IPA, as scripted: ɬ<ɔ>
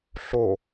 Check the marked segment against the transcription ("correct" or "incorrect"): incorrect